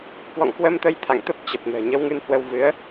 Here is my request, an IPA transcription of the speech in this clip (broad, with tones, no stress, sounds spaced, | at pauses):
k w ɔ̰˧˨ ŋ k w ə˧ m t̪ ə˧ j t̪ʰ a̰˧˨ ŋ t̪ ə˦˥ p̚ t͡ɕ ə˨˩ p̚ n ə̤ː˨˩ ɲ ə˨˦ w ŋ ɨ˧ n h w ə˧ w v ɨ˨˦ ə̯